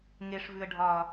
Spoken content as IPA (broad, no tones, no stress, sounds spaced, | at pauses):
ŋ e ʂ v ʉ ə̯ ɖʱ ɒ